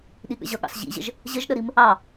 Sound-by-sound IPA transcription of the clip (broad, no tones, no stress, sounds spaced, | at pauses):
ɗ i ɠ ə̰ ʑ ʌ ɠ ɑ̰ s ʑ ḭ ʑ ə̰ ʒ | ʑ ə ʒ ɗ ə ɾ i m | ɑ